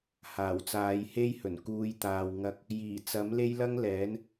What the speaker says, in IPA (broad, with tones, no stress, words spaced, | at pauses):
haː˨˩wt͡saː˨˧jhe˥jhɵ˨˩n kuː˨˧jt̪aː˨wŋɐ˧k̚ | jiː˨˩t͡sɐ˨˥mle˥j lɐ˥ŋlɛː˨˥n